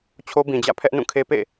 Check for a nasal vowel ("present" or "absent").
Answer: present